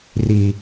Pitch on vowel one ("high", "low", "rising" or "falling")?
low